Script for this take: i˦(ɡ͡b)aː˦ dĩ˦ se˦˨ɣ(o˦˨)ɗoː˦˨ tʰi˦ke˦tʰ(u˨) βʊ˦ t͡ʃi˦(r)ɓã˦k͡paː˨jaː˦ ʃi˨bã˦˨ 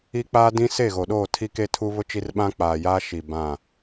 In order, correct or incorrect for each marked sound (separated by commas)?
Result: incorrect, incorrect, incorrect, correct